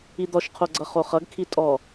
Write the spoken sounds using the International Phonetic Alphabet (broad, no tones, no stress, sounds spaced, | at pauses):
i d̪ ɔ ʃ qʰ o ɡ͡ǀ ʌ χ o χ ʌ ɡ kʰ i tʼ ɔ